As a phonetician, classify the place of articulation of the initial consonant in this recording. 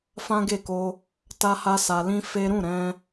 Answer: labial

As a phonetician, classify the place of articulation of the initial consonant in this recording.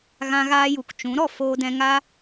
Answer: velar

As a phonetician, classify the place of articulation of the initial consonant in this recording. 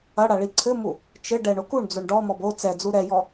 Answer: retroflex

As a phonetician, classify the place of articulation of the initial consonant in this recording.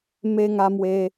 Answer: labial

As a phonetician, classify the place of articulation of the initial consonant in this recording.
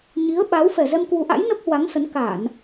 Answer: palatal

